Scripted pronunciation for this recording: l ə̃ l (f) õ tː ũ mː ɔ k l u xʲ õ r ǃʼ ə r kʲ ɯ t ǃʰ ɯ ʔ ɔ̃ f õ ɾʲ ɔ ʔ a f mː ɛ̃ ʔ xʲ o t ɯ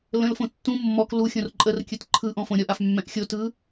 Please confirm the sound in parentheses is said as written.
yes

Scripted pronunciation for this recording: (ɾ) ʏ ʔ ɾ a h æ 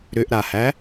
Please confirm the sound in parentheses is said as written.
yes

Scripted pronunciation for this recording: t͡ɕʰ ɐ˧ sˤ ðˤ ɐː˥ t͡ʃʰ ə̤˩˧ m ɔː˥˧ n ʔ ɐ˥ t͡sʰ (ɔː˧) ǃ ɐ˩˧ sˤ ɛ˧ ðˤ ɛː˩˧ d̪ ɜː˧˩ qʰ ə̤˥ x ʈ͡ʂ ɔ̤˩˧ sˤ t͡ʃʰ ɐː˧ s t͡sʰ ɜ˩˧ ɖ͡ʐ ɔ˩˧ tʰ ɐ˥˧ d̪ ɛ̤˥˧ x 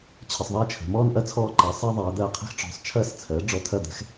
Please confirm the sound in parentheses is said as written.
yes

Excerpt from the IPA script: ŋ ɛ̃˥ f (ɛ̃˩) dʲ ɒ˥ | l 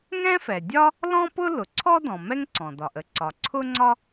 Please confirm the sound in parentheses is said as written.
no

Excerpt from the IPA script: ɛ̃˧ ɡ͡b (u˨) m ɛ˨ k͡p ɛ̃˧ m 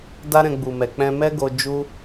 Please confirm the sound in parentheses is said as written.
yes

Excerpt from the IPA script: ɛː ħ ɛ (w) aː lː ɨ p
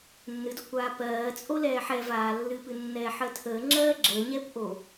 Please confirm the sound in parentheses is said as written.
no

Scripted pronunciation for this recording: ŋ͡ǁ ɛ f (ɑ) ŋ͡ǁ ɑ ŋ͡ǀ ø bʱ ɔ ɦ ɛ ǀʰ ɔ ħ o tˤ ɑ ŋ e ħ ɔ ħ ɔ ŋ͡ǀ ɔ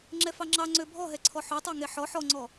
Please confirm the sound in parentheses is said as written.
yes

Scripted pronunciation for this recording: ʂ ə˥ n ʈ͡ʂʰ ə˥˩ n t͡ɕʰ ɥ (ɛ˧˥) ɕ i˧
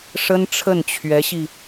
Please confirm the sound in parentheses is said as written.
yes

